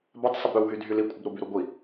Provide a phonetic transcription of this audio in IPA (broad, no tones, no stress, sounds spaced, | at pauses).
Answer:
b a tˤ sˤ ɪ b ɾ ʏ w ɦ y dʱ y l i kʷʼ ɪ b ɾ ʊ b y ɾ u ɡʷ i